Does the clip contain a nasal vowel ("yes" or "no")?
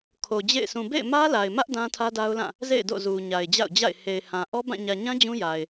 yes